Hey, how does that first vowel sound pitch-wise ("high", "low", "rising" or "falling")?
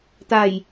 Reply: low